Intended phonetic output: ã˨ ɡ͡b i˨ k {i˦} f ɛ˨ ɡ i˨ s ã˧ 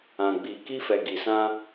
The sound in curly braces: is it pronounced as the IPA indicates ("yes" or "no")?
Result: no